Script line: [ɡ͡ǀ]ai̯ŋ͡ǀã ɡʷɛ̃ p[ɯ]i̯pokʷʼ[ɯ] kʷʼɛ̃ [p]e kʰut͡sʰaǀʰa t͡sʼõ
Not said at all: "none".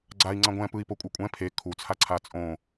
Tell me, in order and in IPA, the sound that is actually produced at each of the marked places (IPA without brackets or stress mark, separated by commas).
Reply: ɡ͡ǀ, ɯ, ɯ, pʰ